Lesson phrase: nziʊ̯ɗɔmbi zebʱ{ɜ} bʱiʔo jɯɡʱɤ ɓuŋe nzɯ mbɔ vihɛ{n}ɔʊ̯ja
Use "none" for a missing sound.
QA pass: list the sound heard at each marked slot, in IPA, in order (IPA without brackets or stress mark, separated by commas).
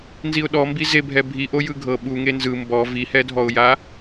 ɛ, dʱ